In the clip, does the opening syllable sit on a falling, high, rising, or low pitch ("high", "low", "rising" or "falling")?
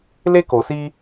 high